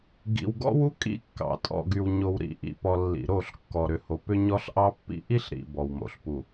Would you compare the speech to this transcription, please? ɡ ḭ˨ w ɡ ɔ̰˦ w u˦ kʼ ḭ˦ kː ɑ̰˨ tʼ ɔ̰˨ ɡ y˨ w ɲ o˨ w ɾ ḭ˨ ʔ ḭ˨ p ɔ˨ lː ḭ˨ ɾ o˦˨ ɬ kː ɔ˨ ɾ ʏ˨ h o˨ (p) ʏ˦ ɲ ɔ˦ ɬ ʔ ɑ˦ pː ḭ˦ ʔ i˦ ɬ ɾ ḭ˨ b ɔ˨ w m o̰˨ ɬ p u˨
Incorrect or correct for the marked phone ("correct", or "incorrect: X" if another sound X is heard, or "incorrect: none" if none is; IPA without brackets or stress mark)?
correct